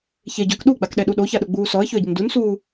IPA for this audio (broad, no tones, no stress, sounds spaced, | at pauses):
ç e ɟ œ k ɗ u ɡ͡b a k ɗ ɛ ɗ u ɗ o ç a ɗ ʊ ɡ͡b uː s ɔ ə̯ ç ø ə̯ ɟ ɪ n d u n s uː